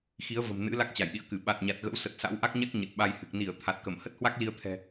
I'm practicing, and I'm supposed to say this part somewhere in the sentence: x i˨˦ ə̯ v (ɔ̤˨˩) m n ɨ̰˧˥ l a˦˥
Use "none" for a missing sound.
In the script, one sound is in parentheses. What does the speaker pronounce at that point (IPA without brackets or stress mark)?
ə̤˨˩